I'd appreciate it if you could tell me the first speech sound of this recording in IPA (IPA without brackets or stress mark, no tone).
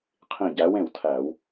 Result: qʰ